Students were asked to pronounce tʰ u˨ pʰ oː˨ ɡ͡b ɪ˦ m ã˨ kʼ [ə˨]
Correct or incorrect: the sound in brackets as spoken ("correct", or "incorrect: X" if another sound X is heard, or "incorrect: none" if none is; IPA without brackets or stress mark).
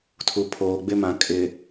incorrect: ɪ˨